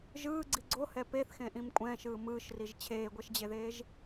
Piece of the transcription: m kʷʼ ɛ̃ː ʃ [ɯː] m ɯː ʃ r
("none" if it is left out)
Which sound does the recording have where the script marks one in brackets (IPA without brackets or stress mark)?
ɯː